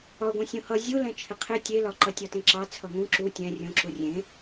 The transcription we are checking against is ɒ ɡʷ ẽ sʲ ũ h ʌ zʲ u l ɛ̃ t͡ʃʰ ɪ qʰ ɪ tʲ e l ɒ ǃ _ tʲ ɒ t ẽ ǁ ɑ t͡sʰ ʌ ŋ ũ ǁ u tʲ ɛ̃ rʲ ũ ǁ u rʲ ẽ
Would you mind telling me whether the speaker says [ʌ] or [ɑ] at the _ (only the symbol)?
ʌ